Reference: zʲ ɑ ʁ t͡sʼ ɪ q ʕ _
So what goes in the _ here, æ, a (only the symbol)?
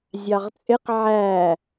æ